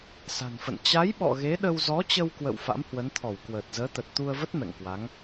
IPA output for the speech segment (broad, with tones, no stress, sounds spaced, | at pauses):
s a̤˨˩ n f ə̰˧˨ n t͡ɕ a˨˦ j ɓ ɔ̰˧˨ ɣ e˨˦ ɗ ə˧ w z ɔ˨˦ t͡ɕ ə˧ w k w ə̰˧˨ w f a̰˧˥ m h w ə˨˦ n t̪ʰ ɔ˧˩ w k w əː˨˩ t̚ z əː˨˦ t̪ ə˨˩ t̚ t̪ u˧ ə̯ v ə˦˥ t̚ m ɛ̰˧˨ ŋ k w a˨˦ ŋ